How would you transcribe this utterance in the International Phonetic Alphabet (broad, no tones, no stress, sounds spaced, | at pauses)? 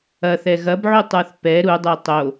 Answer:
ɐ θ ɛ ɣ ɐ b ʕ u tˤ ə˞ θ p ɛ ɾ u dˤ ə˞ tˤ o